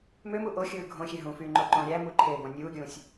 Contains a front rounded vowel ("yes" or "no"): yes